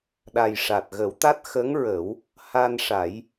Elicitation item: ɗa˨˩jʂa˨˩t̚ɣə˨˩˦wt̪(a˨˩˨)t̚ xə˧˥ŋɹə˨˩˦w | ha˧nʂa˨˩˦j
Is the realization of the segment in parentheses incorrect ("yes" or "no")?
yes